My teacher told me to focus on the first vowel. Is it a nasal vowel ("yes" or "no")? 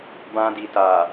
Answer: yes